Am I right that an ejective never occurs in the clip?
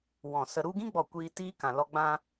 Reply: yes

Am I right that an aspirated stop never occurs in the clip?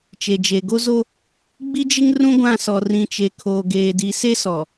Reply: no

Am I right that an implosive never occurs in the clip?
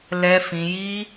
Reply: yes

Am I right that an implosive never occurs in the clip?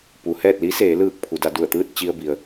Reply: yes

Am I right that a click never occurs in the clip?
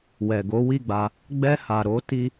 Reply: yes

